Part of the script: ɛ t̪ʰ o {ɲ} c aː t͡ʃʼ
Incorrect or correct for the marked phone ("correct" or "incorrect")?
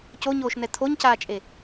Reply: correct